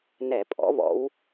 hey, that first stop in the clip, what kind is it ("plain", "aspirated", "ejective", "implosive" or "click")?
ejective